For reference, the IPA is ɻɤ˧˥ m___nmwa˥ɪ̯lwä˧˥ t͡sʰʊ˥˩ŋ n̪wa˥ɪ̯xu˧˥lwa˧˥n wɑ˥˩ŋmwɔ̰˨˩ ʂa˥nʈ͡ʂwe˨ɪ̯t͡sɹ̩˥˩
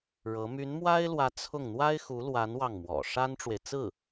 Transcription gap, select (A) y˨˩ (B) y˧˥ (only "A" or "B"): B